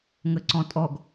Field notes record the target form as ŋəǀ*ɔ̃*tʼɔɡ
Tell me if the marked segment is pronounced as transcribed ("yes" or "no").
yes